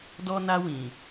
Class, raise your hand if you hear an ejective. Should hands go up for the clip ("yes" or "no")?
no